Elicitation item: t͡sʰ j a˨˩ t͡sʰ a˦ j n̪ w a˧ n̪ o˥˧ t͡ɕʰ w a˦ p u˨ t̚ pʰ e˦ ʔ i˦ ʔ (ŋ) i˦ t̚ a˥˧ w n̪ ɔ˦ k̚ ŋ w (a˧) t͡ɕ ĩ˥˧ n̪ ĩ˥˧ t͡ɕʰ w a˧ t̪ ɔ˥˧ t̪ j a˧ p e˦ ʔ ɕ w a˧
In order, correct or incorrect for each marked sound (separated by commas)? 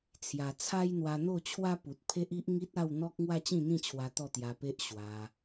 correct, incorrect